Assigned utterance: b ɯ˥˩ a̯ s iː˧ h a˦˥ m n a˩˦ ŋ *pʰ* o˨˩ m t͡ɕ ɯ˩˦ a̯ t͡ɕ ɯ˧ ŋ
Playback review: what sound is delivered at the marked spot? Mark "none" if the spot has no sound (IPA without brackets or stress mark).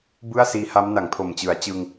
pʰ